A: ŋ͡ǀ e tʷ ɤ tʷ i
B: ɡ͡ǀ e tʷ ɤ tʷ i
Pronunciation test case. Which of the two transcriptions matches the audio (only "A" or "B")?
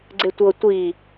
B